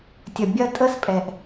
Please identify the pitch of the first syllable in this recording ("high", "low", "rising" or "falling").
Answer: low